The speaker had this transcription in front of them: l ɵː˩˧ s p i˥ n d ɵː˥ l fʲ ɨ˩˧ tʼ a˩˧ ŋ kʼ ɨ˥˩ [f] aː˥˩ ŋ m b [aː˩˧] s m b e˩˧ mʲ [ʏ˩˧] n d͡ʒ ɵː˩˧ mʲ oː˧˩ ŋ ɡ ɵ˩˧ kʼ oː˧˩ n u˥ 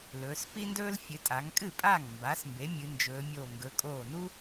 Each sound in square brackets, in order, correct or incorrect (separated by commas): incorrect, correct, incorrect